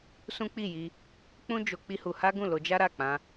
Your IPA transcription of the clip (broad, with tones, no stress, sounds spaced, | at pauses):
s ũ˦ k͡p i˦˨ j i˧ | k͡p ũ˦ d͡ʒ o˧ k͡p i˦ h u˧ h a˦ ɡ ũ˦˨ l o˧ d͡ʒ a˦ ɾ a˦˨ k͡p ã˧